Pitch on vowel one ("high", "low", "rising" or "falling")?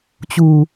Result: low